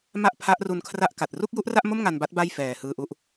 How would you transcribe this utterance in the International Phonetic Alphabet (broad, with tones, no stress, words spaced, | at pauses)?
ma˥˩ʔpʰa˦˥ʔru˧nkʰra˥˩ʔ ka˨˩t̚ ru˥˩k̚ju˦˥ʔra˥˩ʔmo˥˩m ŋa˧nba˦˥t̚ ba˥˩jfɛː˨˩ hɯː˧ʔu˦˥ʔ